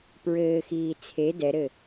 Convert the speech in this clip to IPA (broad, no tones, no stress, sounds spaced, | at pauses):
p ɹ ɘː x iː t͡sʰ e d ɛ ɾ ɘ